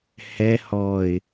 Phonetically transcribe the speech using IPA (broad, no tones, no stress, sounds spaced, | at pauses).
h ɛ h ɔ ɪ̯